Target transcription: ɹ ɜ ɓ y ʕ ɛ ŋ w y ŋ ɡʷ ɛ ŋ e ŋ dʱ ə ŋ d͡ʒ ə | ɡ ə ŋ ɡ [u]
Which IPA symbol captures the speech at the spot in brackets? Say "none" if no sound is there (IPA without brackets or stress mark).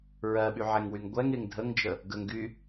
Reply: y